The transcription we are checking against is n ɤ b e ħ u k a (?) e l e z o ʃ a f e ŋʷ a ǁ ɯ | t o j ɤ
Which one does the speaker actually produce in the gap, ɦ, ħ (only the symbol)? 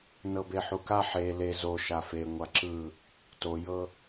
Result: ħ